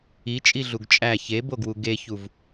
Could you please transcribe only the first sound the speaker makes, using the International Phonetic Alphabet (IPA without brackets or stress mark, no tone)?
i